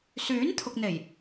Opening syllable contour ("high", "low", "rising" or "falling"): rising